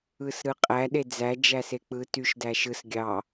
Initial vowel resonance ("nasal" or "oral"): oral